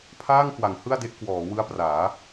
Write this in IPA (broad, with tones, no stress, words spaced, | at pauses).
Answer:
pʰaː˥˩ŋkwa˩˦ŋ hɯ˥˩a̯de˦˥ʔ kwɔː˩˦wɯ˦˥a̯praː˩˦